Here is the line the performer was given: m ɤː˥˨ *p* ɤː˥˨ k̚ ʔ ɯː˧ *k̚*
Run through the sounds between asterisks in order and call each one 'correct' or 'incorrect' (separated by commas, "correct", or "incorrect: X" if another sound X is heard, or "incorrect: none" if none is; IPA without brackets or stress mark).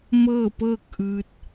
correct, incorrect: t̚